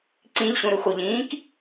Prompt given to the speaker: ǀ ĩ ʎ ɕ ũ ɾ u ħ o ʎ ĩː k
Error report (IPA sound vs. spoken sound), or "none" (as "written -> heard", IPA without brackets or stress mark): ħ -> x